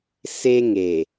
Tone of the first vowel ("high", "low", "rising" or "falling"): high